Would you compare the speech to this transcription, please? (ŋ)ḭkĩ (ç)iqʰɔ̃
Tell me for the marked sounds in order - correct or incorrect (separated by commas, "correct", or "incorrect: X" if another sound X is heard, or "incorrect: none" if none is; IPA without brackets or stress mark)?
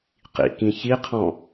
incorrect: q, correct